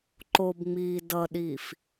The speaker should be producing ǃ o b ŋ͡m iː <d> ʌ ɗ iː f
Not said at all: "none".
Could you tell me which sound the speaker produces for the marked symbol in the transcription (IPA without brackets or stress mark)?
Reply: d